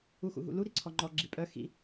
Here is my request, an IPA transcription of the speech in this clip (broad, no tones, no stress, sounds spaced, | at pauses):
u x ṵ ɦ ṵ l u ɾ i ǀʰ ɔ ŋ͡ǃ ɔ ɡ͡ǁ i pʼ œ x ḭ